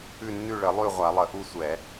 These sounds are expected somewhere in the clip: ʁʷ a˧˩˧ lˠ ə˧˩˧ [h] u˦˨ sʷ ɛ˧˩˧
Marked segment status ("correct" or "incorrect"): incorrect